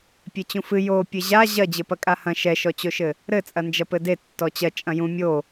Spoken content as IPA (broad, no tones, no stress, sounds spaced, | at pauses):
pʲ e t͡ɕ ũ f ɨ j o pʲ ɘ ʑ a ʑ ɐ d͡ʑ ɘ p ɐ kʼ a h ɐ̃ ʃ ɛ ʃ ɔ t͡ɕ o ʃ ɘ | ɾ ɘ t͡sʼ ɐ n d͡ʒ ɐ p ɘ d e tː ɔ t͡ɕ ɐ t͡ʃʼ ɐ̃ j ũ mʲ o